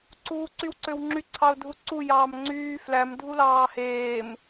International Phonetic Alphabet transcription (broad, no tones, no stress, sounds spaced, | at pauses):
ǀ uː ǀ y w ǀ ø w ŋ͡ǁ y ǀʰ ɑ ʊ̯ dʱ u ǀ u j ɑː m ŋ͡ǀ yː f l æ m dʱ u l ɑː h eː m